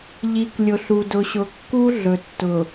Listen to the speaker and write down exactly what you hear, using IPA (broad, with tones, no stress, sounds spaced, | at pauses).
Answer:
ʎ i˨ k lʲ ʊ˨ ɬ u˨ d ʊ˨ ɕ ʊ˨ kː u˦ ɮ ɵ˨ tː ʊ˨